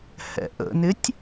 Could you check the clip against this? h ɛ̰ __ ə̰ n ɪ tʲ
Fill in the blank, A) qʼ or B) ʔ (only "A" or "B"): B